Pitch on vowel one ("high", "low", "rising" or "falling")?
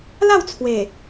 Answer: falling